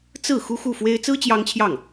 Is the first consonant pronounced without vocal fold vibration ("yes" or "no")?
yes